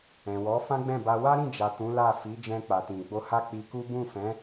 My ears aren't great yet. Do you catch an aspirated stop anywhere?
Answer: no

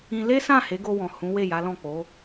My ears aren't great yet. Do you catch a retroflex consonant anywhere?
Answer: no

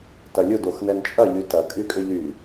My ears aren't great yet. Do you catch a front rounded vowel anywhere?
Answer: yes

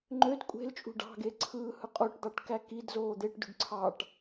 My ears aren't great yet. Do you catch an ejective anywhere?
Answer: yes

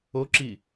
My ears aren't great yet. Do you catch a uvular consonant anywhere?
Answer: no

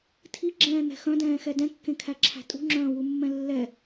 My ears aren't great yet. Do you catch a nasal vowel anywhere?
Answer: yes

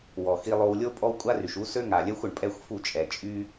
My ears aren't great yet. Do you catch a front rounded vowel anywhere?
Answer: yes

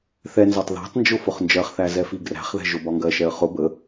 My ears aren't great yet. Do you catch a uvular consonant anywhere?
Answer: yes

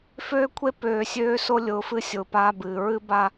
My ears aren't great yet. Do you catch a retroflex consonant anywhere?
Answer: no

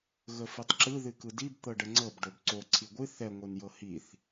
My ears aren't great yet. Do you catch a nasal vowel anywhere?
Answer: no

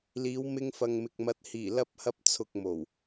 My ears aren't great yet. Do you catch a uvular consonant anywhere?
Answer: no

